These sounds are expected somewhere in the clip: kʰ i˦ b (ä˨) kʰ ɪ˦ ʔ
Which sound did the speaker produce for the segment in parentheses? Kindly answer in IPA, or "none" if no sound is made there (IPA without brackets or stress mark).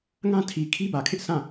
ä˨